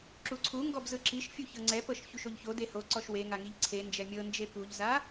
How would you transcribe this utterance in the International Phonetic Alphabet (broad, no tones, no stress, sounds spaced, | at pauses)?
ǁ u ǀʰ u ŋ ɡ ɔ b z ɯ ǁ i ʃ fʲ u ç ɤ ŋ͡ǀ ɛ p ɤ ʃ ç u ʃ o ʎ ç o d e h o ǀ ɔ ʃ w e ŋ a ŋ i ʎ ǀʰ e n d͡ʒ ɛ mʲ ɤ n d͡ʒ e p u ʎ z a